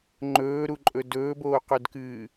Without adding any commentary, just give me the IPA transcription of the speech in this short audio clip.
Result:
ŋ͡ǃ ɵː ɾ u ǃʼ ɵ d ɵː b oː q ɵ d k ɨː

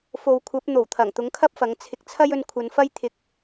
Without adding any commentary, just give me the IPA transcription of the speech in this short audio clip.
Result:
f o˨ w kʷʰ ɐ˨˥ p̚ n̪ o˨˩ w t̪ʰ ɐ˨˩ ŋ t̪ ʊ˨˥ ŋ kʰ ɐ˥ p̚ f ɐ˨˥ ŋ t͡sʰ ɪ˨ k̚ t͡sʰ ɐ˥ j ɵ˧ n kʷʰ ɐ˨˧ n f ɐ˥ j t̪ʰ ɪ˧ k̚

